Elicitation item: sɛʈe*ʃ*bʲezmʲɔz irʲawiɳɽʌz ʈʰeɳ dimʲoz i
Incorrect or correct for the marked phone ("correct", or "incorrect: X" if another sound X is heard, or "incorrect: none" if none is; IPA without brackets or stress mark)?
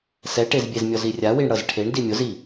incorrect: z